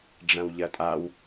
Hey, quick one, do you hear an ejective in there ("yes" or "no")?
yes